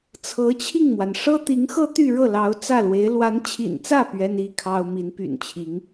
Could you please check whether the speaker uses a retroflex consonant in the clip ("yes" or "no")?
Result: yes